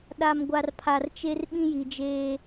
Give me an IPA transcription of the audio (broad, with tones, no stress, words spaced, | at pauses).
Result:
ɗa˨mɡʷa˨rpʰa˨rt͡ʃe˦r ɓĩ˦ji˨d͡ʒeː˦